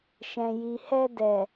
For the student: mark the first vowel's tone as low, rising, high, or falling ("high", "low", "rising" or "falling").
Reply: low